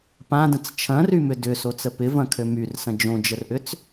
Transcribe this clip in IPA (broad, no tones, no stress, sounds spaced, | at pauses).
p ã d ə̃ t͡s t͡ʃʰ ɐ̃ r y m ʏ d ʏ s o t͡s ə p ɪ v ɐ̃ kʰ ø m y r s ɐ̃ d͡ʒ õ d͡ʒ ə r ʔ ʏ t͡s